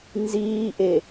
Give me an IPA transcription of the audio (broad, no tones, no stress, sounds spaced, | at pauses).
n z iː ʔ e